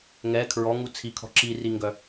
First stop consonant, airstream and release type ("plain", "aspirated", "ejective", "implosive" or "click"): aspirated